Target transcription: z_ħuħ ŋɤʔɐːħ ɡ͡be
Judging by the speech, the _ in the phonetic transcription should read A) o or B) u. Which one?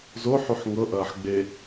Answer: A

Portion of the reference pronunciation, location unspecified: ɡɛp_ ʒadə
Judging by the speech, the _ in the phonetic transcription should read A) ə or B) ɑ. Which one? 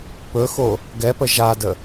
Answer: A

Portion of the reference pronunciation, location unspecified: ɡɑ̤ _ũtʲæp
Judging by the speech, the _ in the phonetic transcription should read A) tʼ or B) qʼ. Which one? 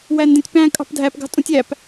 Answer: A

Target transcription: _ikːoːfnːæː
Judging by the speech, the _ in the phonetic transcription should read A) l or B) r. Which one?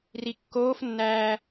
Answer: B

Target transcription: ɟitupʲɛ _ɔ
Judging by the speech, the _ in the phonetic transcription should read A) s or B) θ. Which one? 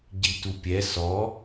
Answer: A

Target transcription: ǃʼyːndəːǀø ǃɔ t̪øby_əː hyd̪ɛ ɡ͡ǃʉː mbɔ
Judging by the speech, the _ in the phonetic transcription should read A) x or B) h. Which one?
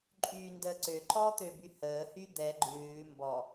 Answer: B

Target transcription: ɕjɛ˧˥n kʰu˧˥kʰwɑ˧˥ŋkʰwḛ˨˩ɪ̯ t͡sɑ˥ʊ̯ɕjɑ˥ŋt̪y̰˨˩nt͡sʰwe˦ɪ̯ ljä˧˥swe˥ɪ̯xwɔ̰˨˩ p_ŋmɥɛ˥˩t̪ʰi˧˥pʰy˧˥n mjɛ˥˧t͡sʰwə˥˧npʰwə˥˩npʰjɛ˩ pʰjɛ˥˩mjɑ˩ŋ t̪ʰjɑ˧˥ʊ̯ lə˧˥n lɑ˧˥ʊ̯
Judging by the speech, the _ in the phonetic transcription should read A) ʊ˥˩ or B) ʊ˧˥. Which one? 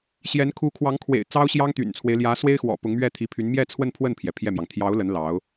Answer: B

